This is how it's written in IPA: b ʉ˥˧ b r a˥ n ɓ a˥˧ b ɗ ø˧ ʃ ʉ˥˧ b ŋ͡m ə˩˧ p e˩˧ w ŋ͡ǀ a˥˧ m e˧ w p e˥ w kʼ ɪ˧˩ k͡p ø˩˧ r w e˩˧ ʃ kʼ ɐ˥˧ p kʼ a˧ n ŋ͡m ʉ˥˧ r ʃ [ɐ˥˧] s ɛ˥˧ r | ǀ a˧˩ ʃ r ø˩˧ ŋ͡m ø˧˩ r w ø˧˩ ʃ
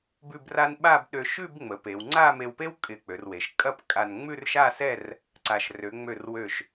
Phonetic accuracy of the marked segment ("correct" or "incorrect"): incorrect